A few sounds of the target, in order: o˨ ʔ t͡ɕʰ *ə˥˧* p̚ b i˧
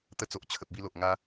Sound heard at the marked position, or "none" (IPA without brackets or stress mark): ə˨